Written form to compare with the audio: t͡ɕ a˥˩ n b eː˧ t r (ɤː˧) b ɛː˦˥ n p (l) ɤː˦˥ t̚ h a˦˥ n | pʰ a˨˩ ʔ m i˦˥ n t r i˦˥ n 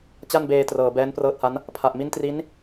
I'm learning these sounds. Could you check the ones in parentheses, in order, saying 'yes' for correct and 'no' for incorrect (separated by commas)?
yes, no